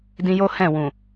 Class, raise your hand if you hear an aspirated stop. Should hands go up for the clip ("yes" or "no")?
no